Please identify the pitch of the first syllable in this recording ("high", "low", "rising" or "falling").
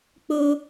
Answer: high